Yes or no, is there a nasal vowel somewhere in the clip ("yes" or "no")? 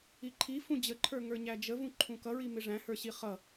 yes